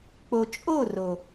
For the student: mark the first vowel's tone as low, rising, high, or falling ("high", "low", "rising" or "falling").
low